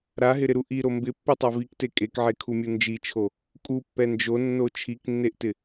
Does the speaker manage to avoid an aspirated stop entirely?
no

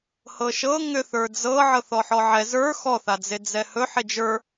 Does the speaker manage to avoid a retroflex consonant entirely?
yes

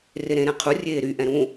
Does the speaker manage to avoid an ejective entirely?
yes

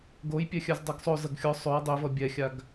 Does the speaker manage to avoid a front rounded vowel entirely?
no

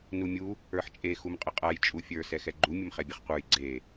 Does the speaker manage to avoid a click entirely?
no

